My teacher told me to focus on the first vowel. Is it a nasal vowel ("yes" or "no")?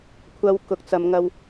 no